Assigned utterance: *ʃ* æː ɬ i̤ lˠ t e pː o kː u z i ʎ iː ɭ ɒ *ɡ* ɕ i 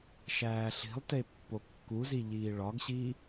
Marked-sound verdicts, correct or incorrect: correct, correct

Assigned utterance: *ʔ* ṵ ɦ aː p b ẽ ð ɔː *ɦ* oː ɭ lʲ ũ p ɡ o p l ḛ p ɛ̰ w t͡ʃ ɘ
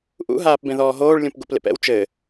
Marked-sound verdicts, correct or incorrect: correct, correct

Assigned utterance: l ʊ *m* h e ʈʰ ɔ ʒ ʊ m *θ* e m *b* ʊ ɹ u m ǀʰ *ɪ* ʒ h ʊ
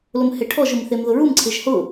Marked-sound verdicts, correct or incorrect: correct, correct, incorrect, correct

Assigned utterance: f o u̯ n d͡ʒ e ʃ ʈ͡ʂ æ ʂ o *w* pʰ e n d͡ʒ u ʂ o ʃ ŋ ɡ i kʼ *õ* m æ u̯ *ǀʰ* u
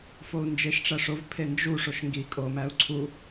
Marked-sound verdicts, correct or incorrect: incorrect, incorrect, correct

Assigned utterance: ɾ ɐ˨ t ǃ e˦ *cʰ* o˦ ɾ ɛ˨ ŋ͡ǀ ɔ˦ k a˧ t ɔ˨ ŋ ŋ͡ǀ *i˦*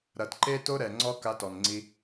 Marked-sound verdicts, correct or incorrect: incorrect, incorrect

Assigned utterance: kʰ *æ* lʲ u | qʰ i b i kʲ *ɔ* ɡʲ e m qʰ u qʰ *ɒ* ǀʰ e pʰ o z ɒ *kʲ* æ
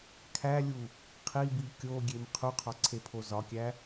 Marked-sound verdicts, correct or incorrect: correct, incorrect, correct, correct

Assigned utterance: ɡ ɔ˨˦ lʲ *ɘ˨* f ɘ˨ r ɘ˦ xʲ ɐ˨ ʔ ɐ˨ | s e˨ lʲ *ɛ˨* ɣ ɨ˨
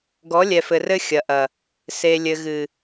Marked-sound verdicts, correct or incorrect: incorrect, incorrect

